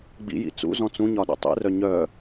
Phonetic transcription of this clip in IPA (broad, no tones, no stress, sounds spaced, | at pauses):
ɡ͡b ḭ j ḭ t͡s ṵ z ɔ̃ t͡s ũ ɲ ɒ ɗ ṵ tˤ ḭ r œ ɲ œ